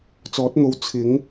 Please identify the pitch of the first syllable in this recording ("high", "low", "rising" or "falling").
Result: rising